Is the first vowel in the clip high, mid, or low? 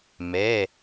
mid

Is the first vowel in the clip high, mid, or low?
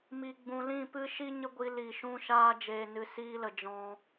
high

